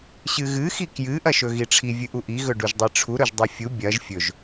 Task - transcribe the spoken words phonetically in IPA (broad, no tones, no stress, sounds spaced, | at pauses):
ɕ ɨ ɣ ɨ x i k j ɨ ʔ ɐ ʃ ɵ ɣ i ʈ͡ʂʰ i vʲ ɨ ʔ u ʔ i ɣ ɵ ɖ u ʒ dˤ i ʈ͡ʂʰ u ɾ ɵ ʒ dˤ o fʲ u bʲ ɐ ʒ fʲ ɵ ʒ